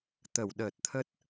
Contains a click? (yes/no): no